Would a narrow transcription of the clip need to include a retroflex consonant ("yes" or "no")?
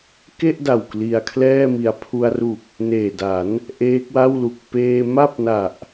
no